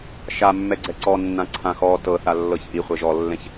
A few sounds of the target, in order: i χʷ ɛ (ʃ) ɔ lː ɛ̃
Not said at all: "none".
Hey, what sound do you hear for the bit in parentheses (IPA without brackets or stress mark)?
ʒ